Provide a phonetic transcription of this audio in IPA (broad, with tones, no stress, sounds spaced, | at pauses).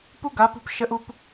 p u˦ ɡ a˨˦ p ṳ˧ p ʃ ə˧ ʔ u˧ p